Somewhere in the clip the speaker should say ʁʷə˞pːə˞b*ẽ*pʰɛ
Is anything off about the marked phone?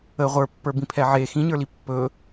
yes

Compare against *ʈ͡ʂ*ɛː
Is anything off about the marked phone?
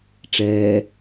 no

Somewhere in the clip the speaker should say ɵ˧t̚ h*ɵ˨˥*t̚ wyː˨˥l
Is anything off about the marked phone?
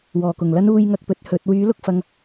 no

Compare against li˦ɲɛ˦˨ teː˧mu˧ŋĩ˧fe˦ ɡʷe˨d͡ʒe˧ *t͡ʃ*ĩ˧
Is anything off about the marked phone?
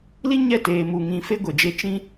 no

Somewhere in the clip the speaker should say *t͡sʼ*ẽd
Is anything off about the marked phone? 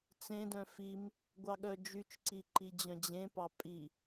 yes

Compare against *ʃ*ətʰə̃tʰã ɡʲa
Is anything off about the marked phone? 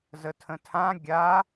yes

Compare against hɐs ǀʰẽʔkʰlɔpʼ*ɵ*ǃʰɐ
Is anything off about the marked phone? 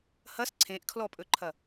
no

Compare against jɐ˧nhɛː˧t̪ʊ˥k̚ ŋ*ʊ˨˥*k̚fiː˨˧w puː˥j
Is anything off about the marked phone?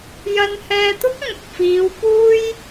yes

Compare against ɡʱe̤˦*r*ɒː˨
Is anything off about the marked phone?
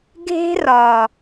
no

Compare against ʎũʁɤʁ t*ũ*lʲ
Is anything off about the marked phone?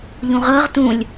no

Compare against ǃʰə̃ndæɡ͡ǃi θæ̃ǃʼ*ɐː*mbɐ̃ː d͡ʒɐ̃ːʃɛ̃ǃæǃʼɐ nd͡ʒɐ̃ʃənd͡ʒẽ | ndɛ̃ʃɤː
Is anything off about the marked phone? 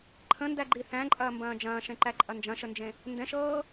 no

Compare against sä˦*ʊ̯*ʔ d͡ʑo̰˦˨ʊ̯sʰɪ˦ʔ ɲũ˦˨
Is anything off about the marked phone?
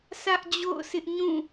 yes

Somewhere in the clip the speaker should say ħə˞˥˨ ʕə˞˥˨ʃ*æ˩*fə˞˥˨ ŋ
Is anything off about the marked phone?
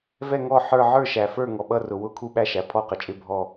no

